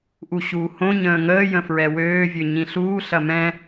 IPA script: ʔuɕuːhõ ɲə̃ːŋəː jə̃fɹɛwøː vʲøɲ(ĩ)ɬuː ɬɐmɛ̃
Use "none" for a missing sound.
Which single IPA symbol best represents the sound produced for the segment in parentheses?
ĩ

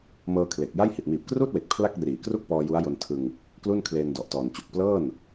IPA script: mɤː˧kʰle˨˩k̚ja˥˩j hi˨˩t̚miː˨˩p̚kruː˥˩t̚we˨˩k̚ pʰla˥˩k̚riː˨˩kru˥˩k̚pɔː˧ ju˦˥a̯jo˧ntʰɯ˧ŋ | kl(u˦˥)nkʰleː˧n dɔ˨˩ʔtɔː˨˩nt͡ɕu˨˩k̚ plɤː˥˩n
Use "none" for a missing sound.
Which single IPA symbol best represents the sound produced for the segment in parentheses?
u˥˩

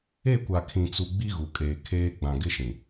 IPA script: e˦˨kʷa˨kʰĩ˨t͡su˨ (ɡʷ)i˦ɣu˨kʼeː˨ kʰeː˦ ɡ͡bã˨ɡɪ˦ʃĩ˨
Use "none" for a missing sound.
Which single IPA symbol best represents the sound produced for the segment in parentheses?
ɡ͡b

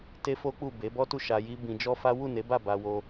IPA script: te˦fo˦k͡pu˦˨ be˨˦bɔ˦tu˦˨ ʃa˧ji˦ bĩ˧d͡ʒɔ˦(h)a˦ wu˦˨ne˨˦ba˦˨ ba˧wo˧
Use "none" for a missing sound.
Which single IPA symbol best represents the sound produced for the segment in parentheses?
f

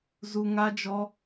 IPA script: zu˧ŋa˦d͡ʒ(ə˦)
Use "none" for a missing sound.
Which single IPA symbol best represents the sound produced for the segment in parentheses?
ɔ˦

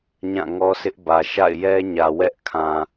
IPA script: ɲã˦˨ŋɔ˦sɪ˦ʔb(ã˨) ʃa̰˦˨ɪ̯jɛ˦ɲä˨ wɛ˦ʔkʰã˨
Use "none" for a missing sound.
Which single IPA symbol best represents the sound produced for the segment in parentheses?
ä˨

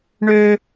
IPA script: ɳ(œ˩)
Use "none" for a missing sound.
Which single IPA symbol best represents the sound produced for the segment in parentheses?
ø˩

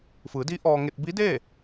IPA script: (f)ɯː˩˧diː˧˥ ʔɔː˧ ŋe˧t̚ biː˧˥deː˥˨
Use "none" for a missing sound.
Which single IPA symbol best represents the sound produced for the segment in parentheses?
f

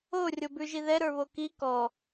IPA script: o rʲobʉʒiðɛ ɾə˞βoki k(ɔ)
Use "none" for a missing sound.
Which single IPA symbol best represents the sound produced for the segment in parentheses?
ɔ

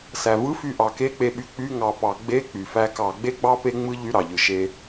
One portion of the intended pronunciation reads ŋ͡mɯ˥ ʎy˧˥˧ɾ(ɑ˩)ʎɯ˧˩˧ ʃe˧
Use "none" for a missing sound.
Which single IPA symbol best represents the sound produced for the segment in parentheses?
ɑ˩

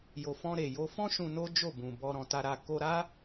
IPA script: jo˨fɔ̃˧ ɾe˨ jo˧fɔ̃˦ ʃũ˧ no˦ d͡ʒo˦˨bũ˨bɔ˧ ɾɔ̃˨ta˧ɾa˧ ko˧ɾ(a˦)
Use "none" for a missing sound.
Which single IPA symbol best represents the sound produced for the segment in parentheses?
a˦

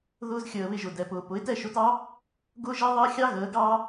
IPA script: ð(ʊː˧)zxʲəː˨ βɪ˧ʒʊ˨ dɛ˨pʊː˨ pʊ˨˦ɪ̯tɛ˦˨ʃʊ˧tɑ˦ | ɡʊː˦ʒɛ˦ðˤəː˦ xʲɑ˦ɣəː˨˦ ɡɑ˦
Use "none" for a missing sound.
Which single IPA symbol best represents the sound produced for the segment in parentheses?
ʊː˧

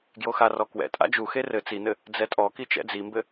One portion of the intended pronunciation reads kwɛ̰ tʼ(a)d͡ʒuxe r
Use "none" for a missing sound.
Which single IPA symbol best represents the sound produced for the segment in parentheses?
a̰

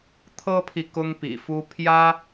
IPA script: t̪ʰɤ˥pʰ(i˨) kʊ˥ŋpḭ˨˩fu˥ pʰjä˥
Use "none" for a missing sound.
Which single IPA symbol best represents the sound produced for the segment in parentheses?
i˨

